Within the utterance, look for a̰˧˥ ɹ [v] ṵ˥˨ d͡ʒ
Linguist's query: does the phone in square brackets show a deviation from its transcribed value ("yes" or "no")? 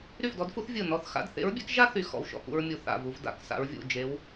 yes